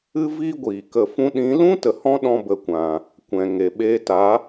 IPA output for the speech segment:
ɨ˦ v iː˦ ɡʷ iː˨ k ə˧ f ũ˦ ɗ ĩ˨˦ l ũ˦ t ə˨ h ɔ̃˦ ɗ ɔ̃˧ b ə˨ kʷ ã˨ | kʷ ɛ̃˨ ŋ e˨ ɓ eː˧ t a˨˦

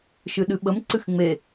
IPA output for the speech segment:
ʃ ɨ ɗ ɨ ɓ ə m ǀ ɨ x ŋ͡m e

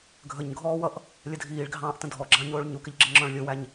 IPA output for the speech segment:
ɡʱ ə ɲ ɡʱ ɔː w ʌ ʔ | lʲ ə dʱ iː ɭ ɡʱ ɑ̃ː ʔ t ə̃ dʱ ɔ ɡ͡ǁ ɑ̃ ɲ ʊː ɭ ɲ u k ɪ ʎ ɡ͡ǁ ɪ ŋ͡ǁ ɔ̃ ɭ lʲ ʊ w æ ɲ

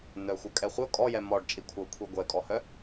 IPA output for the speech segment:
n œ xʷ œ kʼ ɛ χʷ œ kʼ ɔ j ɛ m ɔ ɖ t͡ʃʼ i kʷʰ œ kʷʰ e ɡʷ ɛ kʼ ɔ h œ

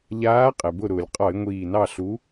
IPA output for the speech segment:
ʎ aː˨˥ qʼ ɛ˩ b ʊ˧˩ ɾ ʊː˩ lʲ qʼ ɒ˧˩˧ ɪ̯ ŋʷ iː˧˩ n ɑ˥˨ ɬ u˨˥

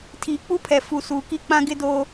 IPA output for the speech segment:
tʰ iː˨ k͡p u˦ pʰ ɛ˨ f u˨ s uː˨ k i˦ k͡p ã˦ ɡ ɪ˦ d oː˦

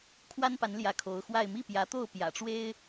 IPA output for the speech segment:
kʰ w a˥ n p a˧˥ n l j ä˧˥ kʰ o˧˥ ʊ̯ x w a˥˧ ɪ̯ m i˥˩ p j ä˧˥ t̪ o˥˩ ʊ̯ p j ä̰˨˩ ʈ͡ʂ w e˥ ɪ̯

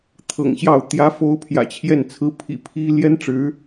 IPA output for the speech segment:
t̪ʰ ɤ̰˨˩ ŋ ɕ j ɑ˥˩ ʊ̯ t̪ j ä˧˥ f o˧˥ ʊ̯ pʰ j ä̰˨˩ t͡ɕʰ j ɛ˥˩ n t͡sʰ ɹ̩˥ pʰ ḭ˨˩ pʰ i˥ l j ɛ˥ n ʈ͡ʂ ɻ̩˧˥

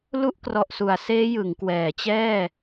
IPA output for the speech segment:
l u˥˩ ʔ k r ɔ˨˩ ʔ s u˩˦ a̯ s eː˦˥ j ɯ˩˦ ŋ k w ɛː˩˦ t͡ɕ ɛː˥˩

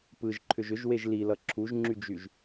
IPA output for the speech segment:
p ɯ ʒ ǃʰ ʏ ʒ ʏ ʒ w e ʒ l i l ʌ ǁʰ u ʒ ŋ͡ǁ y d͡ʒ y ʒ

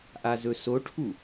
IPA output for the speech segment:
ʔ a z ɵ s o ʈʰ u

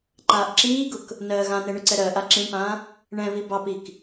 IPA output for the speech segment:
ǃ aː ʔ ǁ iː ɡ ʊ k | n ɜː ɣ ã n ɛ ɳ ʊ ǀ ɛ ɾ ɜː ʔ a ǁ ĩ ɳ p ãː | ɳ ɛ̃ β i b ɑ p i k

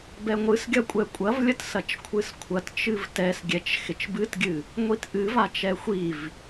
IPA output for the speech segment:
b ɛ ŋʷ ɨ s ɡʲ ɐ kʷʼ ɛ kʷʼ ɐ v lʲ ə t s ɐ t͡ʃ kʷʰ ɨ s kʷʰ ɐ t t͡ʃ ɨ v t ɛ s ɡʲ ɛ t͡ʃ x ɪ t͡ʃ b ɨ t ɡʲ ɨ | ŋʷ i t ʔ ɨ v a t͡ʃ ɛ xʷ i v

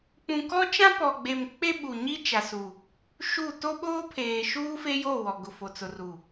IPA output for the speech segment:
k͡p ũ˨ k ɔ˦ t͡ʃ ã˦ p ɔ˨ ɡ͡b e˨ m k͡p e˦ ɓ u˨ ɲ i˦ t͡ʃ a˨ s u˨ | ʃ u˦˨ t o˦ ɓ oː˦ pʰ eː˨ ʃ uː˦ f e˦ j o˦˨ w ɔ˨ ɡ ʊ˨ f o˨ t͡s ʊ˨ r u˨

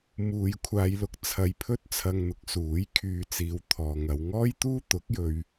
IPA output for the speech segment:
m uː˨˧ j kʷʰ aː˨˧ j l ʊ˨˥ k̚ t͡sʰ ɐ˧ j pʰ ɵ˥ t̚ t͡sʰ ɐ˧ ŋ n̪ ʊ˨˥ k̚ s uː˨˥ j kʰ yː˧ t͡s iː˨˧ w t̪ʰ ɔː˨ ŋ ɐ˨˧ w ŋ ɔː˥ j t̪ uː˥ t̪ ʊ˨˥ k̚ j ɵ˧ ɥ

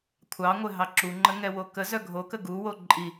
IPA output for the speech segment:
kʷʰ ɑ ŋʷ ɘ ɦ ɑ ǁ u ŋ͡ǃ ə ŋ ɛ w o k ə z œ ɡʱ o k ə ɡ u w o ǃʼ i

